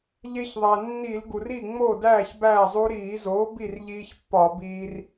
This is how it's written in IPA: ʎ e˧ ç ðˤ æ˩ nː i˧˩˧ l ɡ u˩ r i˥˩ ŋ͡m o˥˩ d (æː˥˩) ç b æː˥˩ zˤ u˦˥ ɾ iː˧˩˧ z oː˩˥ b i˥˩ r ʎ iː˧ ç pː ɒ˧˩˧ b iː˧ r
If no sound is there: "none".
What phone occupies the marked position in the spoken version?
æː˥˩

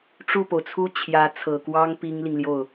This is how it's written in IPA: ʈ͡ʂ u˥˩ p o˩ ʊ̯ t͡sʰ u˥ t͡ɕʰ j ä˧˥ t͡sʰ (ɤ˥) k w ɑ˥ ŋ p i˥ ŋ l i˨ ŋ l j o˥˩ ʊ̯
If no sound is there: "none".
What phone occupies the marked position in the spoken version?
ɤ˨˩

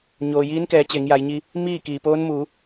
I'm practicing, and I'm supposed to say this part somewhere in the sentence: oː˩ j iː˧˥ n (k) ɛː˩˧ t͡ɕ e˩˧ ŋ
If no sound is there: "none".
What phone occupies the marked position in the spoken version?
k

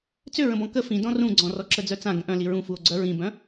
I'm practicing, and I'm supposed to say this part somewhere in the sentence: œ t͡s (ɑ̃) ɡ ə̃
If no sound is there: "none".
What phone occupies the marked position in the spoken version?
ã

